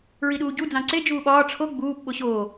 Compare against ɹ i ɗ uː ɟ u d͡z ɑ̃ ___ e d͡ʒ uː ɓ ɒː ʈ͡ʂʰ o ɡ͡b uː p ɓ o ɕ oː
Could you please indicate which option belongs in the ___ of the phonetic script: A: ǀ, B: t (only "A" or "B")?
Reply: A